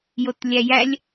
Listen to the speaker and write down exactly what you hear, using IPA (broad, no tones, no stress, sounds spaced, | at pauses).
j o t lʲ æ j æ lʲ